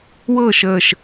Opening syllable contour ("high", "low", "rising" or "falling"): falling